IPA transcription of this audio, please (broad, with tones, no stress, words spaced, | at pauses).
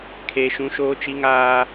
kʰeː˦ʃũ˦ʃoː˦t͡ʃi˦ ŋaː˦